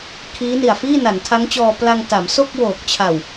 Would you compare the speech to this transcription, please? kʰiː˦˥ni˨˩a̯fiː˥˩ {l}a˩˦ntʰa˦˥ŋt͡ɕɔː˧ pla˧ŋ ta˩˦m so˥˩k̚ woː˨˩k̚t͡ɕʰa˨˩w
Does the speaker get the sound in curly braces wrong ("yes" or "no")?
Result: yes